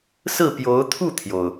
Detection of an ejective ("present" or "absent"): absent